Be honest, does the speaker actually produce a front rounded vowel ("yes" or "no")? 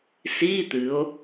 no